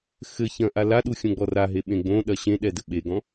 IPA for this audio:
x ɘ ç ɐ̃ ʔ a l a ɗ u xʲ õ ɡ͡b ɔ r a ɦ e ɓ ẽ ɡ͡b õ ɗ ɐ ɕ ẽ ɗ ɛ d ɘ ɓ e ɡ ɔ̃

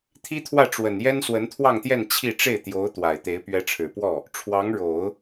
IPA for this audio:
t̪ʰ i˥ t̪ʰ w ä˥˩ ʈ͡ʂ w ə˨˩ n j ɛ˥ n s w ə˧˥ n t̪ʰ w ɑ˥˧ ŋ t̪ j ɛ˥˧ n t͡ɕʰ i˥˧ ʈ͡ʂ e˥˩ ɪ̯ t̪ j o˧˥ ʊ̯ t̪ w a˨˩ ɪ̯ t̪ e˧˥ ɪ̯ p ɥ ɛ˧˥ ʈ͡ʂʰ ɻ̩˨˩ p w ɔ˥˩ | ʈ͡ʂʰ w ɑ˧˥ ŋ ɻ o˨˩˦ ʊ̯

